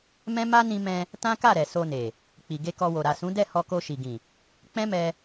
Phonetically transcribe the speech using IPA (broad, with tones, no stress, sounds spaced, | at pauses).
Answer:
m ɛ̃˦ m a˦ n ĩ˧ m ɛ̃˧ | t ã˦ k a˦˨ ɾ ɛ˨ s o˧ n e˨ | k͡p i˨ ɡ e˧ k ɔ˧ w o˨ ɾ a˨ s ũ˨˦ d ɛ˦˨ h ɔ˧ k o˧ ʃ i˨ ɡ ĩ˨ | k͡p ɛ̃˦ m ɛ˧